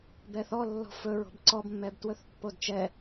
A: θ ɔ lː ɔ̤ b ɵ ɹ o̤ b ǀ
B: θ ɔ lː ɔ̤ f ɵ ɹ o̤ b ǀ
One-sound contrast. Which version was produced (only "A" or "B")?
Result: B